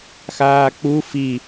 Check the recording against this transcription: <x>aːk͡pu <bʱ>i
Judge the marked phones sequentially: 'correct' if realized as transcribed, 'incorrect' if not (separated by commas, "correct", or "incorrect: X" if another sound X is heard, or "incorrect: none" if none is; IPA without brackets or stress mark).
correct, incorrect: f